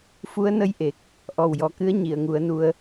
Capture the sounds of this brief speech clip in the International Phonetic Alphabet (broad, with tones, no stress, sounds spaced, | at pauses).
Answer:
f u˧˥ ə̯ n ə˧˥ j ʔ e˨˩ k̚ | ʔ ɔ˨˩ w j ɔ˨˩ k ɨ˧˥ ə̯ ɲ i˨˩˨ ə̯ ŋ u˨˩˦ ə̯ n u˧ ə̯